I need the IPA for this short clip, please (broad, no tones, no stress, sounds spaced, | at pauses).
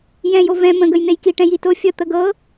j ɛ̃ j o v ɛ̃ m ə̃ ɡ ə j n̪ e j k i ʈ ɛ̃ j i t o fʲ ə t̪ ə ɡ ɤ